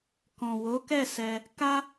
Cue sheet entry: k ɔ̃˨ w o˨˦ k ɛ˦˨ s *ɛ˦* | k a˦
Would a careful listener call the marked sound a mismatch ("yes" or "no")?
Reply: yes